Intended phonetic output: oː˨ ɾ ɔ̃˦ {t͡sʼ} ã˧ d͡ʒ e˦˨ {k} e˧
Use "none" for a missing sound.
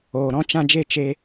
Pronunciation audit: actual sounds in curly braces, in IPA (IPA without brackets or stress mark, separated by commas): t͡ʃ, t͡ʃ